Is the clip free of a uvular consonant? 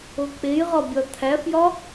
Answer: no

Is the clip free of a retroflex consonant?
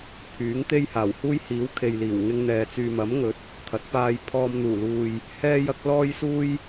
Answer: yes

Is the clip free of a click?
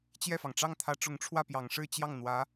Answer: yes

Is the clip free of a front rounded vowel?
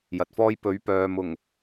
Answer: no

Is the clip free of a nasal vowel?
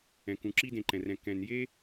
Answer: no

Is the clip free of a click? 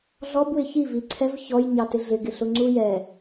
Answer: no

